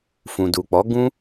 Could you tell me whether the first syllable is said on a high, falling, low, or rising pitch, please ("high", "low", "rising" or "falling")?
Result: low